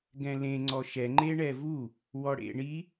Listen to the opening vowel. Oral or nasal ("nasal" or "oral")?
nasal